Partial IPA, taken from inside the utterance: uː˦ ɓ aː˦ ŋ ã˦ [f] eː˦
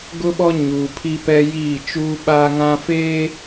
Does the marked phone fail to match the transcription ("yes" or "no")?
no